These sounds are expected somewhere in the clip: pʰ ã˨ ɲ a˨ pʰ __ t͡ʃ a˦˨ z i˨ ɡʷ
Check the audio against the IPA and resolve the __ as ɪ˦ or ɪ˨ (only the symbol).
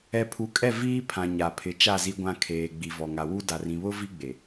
ɪ˨